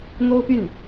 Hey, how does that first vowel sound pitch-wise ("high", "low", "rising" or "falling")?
high